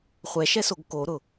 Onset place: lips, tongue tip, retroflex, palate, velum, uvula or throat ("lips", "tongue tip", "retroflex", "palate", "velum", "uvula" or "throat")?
uvula